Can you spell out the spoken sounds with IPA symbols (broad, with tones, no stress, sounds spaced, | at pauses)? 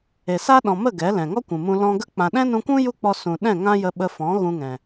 e˨ s a˦ ɗ ɔ̃˨ m ə˦˨ ɡ ɛ˨˦ l ɛ̃˨ ŋ ɔ˦ kʷ ũ˨ m ũ˧ l ɔ̃˧ ɡ ə˦ k͡p ã˨ ɗ ɛ̃˦ n ũ˧ kʷ ũ˦ j u˦ k͡p ɔ˧ s ũ˨ ɗ ɛ̃˦˨ ŋ ã˦ j ə˧ ɓ ə˧ f ɔ̃˨˦ ɣ ũ˦ ŋ ɛ̃˨